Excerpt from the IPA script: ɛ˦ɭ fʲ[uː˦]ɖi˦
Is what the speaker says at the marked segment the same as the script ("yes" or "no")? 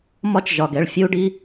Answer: yes